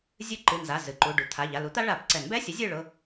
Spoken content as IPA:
zʲ ɨ˦˥ ǃ ɨ˩˧˩ n z a˩˧˩ z ɨ˩˧˩ ǃ u˩˧˩ ɖ u˩˧˩ t̪ʰ a˩˧˩ ʎ a˩˧˩ l u˨˥ t̪ a˦˥ ɭ a˨˩˦ p ǀ ɛ˨˩˦ n b ɛ˧˥˧ sʲ ʊ˨˥ zʲ ɨ˦˨ ɭ ʊ˩˧˩

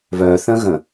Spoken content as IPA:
β œ θ ə̃ ɣ ə̃

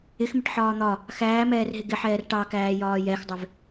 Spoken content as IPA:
ɪ x m ɪ ʈ ħ ɒː n̪ ɒ | x æː m ɛː r ɦ ɪ ɡ ɪ ħ ɛː r ʈ ɑ k æː j ɒː j ɛ x dˤ ɪ v

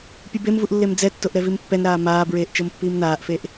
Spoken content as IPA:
pʲ ɯ b e m v u ʔ lː e m d͡z ɛ tː o ʔ ɾ ɛ v i m pː ɛ n ɾ aː m aː b ɹ eː ʔ t͡ʃ ɤ m pː iː m n aː ʔ f e ʔ

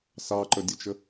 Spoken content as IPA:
s ɑ ǃ ə dʲ ə t͡ʃ ə

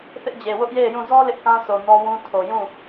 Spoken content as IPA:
θ ɪ˦ ʔ d͡ʑ e˨ w ʊ˦ ʔ j e˦˨ ɪ̯ j ũ˦˨ z ɔ˦ l ɪ˦ ʔ k ã˦ sʰ o˨ n ɔ˦ w ũ˦ tʰ o˨ j ũ˦˨

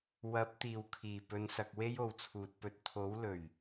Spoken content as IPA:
w ɐ˨˥ p̚ t̪ iː˨˩ w kʰ iː˨˩ p ɵ˨˧ n s ɐ˨ k̚ w e˥ j o˨ w t͡sʰ uː˨ t̚ p ɵ˧ t̚ t̪ʰ o˨˥ w l ɵ˨˩ ɥ

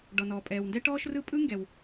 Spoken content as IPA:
ɖ ɔ˩ n ɔː˩ pʼ ɛː˩ w n d ɛ˥ ʈ ɔː˥ ʃ r ɯ˥ pʼ ɯ˥ ŋ ɡ ɛ˩ w

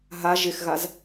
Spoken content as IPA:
ɦ a ʒ ɪ x ɣ a z

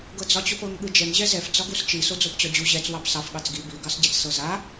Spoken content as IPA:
ɡ ɤ d͡z ɒ t͡ɕ o p ɤ ŋ ɠ ɯ d͡ʒ ɛ ŋ ʑ ɛ z ɛ f d͡z ɒ ɡ u s t͡ʃ i s o d͡z o p t͡ɕ ɒ d͡ʑ u ʑ ɛ t͡s w ɑ p s ɑ f ɠ ɑ t͡s ɡ i b i ɡ ɑ s ɟ ɛ t͡s s ɤ z a

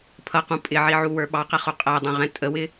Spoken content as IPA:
pʰ ʌ q ũ pʼ ɪ ʕ i ʕ u w ə˞ ɓ ɑ q ɛ χ u qʼ æ dˤ ɛ̃ ʁ ɛ̃ tʼ ə w ɪ

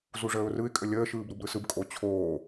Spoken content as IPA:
z u ʐ əː ʊ̯ r ɯ ɪ̯ kʼ ə lʲ əː ʃ ɯː b ɾ u b ɾ ɯ s ɯ b kʼ o t͡ɕʰ oː

